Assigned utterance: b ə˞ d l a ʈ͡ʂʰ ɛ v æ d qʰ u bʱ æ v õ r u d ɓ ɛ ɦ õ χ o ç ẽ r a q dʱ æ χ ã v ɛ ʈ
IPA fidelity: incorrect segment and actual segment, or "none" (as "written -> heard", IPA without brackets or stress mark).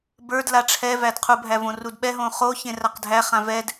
ʈ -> d